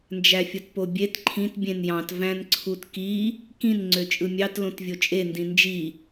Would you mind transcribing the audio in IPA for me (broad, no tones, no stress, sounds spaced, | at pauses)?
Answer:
n d͡ʒ æ fʲ o t p o bʲ e t ǃʰ ĩ t bʲ ẽ n j ɑ̃ t v æ̃ n ǀʰ u t k i | k ĩ n ŋ͡ǀ ø t͡ʃʼ ɯ mʲ ɑ t l õ t vʲ o t͡ʃʼ e n d ĩ n d͡ʒ i